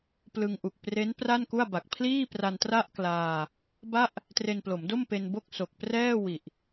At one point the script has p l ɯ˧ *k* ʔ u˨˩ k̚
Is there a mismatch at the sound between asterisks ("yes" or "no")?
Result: yes